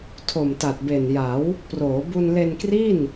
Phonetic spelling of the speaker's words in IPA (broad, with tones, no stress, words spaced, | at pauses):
tʰo˨˩mta˨˩t̚be˨˩nja˩˦w | proː˩˦ bu˧nle˧nkri˥˩n